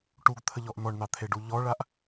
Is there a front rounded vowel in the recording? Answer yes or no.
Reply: no